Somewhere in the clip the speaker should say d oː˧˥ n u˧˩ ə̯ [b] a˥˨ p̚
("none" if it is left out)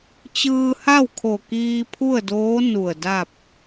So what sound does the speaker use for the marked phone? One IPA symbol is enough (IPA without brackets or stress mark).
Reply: d